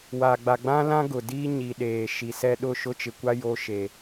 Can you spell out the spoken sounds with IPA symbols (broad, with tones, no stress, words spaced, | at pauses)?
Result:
wa˨ɡ͡ba˨ɡ͡bã˦lã˦ ɡʊ˨diː˦ ɲi˨ɗeː˨ ʃi˨sɛ˦ ɗʊ˦˨ ʃʊ˦t͡ʃɪ˨kʷa˦ jo˦ʃe˨